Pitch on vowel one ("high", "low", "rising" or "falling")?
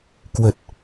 low